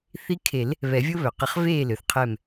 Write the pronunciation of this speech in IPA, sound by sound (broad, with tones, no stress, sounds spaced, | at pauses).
θ i˧˥ kʰ e˨˩˦ l | β ɛ˨˩˦ vʲ o˥ β œ˩ q ə˨˩˦ χ v eː˥˩ l ø˩ θ qʰ ɛ˧˩ m